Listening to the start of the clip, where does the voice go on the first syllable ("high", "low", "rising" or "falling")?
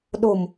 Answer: low